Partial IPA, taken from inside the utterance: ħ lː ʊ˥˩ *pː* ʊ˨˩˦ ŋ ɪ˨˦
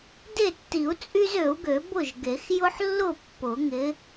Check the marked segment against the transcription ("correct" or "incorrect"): correct